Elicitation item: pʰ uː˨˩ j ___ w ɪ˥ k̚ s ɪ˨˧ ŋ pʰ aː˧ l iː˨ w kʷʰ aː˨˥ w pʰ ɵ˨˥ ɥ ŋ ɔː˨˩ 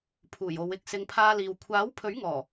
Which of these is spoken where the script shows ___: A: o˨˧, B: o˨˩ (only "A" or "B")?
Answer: A